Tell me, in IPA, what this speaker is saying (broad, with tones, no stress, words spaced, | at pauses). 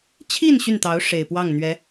t͡ɕʰi˥˧n ɕy˥˩nt̪ɑ˧˥ʊ̯ ʂe˨˩ɪ̯pwɑ˥˩ŋn̪ɥɛ˧˥